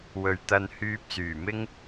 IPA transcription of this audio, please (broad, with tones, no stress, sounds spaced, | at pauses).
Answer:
w ɵ˨ ɥ t̪ ɐ˧ n h yː˧ p̚ s yː˨˩ m ɪ˥ ŋ